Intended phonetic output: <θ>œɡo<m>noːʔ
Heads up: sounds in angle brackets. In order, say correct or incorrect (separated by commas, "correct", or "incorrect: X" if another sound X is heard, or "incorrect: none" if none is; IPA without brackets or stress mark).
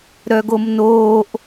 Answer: incorrect: ɾ, correct